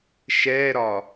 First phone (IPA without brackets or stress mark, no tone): ʃ